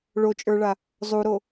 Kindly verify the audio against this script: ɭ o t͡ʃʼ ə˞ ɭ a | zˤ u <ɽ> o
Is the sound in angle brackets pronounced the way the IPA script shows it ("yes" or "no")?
no